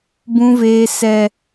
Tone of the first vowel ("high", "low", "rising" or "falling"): low